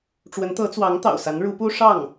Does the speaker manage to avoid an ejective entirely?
yes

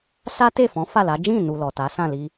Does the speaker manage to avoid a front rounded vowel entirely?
yes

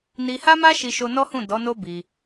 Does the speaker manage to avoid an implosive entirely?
yes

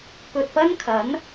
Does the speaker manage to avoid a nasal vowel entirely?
yes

